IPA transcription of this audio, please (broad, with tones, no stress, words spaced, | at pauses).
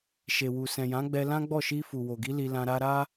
ʃe˨wu˨ sɛ̃˨jã˨˦ɡ͡bɛ˧ lã˦ɡ͡bɔ˦˨ ʃi˧ fu˨ wo˨ɡi˨˦ li˧lã˧ ɾa˧ɾa˦